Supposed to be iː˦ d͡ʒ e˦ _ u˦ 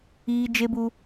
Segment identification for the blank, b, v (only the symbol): b